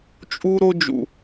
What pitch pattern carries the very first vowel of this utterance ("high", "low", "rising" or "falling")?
high